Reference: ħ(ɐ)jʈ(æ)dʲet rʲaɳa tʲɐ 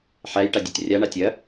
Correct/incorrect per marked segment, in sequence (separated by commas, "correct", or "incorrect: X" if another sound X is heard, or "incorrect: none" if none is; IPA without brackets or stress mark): incorrect: æ, incorrect: a